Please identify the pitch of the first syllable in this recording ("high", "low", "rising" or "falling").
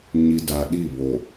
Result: low